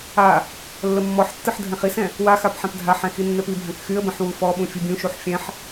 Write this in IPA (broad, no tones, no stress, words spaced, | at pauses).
a | lːəmːɔħtːɯħ dʱɛ̃χisɛ̃ | waxap ħɛ̃pdʱaħɛ̃ xinːɛpibʱãk xyə̯bə̃ħ wufɔɓũ fʲubʲũʃuħ fʲɛ̃ħ